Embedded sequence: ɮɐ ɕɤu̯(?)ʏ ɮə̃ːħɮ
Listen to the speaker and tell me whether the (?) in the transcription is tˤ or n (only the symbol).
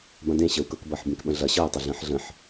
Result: tˤ